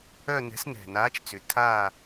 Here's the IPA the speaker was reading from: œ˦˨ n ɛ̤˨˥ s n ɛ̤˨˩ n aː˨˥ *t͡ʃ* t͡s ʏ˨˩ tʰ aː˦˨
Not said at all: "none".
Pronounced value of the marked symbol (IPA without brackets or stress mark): t͡ʃ